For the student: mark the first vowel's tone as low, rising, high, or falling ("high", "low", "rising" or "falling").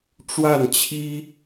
falling